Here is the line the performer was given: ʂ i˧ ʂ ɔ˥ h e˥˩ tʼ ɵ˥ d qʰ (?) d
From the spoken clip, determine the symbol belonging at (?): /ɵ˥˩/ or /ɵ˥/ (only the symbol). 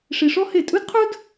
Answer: ɵ˥